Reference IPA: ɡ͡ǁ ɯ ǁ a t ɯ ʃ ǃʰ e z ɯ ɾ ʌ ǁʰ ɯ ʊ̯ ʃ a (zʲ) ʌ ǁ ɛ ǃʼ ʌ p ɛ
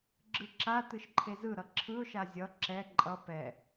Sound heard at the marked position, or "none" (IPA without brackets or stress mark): zʲ